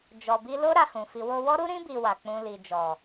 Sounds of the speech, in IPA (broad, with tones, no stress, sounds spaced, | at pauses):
d͡ʒ ɔ˧ b i˦ l o˦ ɾ a˧ h ũ˨ f i˧ w o˧ w ɔ˦ ɾ u˦ ɾ ĩ˦ b i˧ w a˨ k͡p ũ˧ l i˨ d͡ʒ ɔ˨